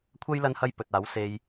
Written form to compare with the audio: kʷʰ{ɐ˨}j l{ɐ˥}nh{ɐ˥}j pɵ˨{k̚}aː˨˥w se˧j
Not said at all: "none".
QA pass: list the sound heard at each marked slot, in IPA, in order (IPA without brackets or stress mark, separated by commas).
ɐ˥, ɐ˥, ɐ˥, t̚